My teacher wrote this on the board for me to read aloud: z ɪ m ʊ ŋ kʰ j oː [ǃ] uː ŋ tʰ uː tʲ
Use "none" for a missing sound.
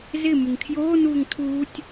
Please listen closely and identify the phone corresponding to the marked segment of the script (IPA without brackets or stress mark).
n